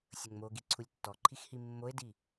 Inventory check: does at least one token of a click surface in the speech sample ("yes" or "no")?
yes